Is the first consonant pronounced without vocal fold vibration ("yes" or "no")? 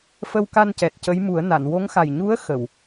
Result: yes